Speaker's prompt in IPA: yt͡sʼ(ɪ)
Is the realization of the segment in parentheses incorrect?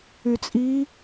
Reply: yes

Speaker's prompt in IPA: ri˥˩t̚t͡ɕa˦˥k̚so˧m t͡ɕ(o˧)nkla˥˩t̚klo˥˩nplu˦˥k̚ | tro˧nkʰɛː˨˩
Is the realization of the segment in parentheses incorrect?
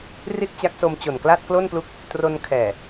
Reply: yes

